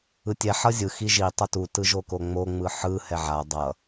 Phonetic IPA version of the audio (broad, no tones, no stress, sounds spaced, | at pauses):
ɯ tʲ ɛ ħ ʌ zʲ ɯ x i ʒ i tˤ ʌ t u t ɯ ʒ o k o ŋ͡m o ŋ͡m ɯ ħ ɯ h ɛ ʕ a dˤ ʌ